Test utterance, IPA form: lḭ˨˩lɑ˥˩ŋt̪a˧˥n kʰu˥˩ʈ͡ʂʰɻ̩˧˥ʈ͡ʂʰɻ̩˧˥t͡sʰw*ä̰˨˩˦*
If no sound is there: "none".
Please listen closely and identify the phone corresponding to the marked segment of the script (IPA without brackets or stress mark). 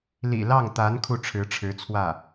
ä˥˩